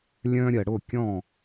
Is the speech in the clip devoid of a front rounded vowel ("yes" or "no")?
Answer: no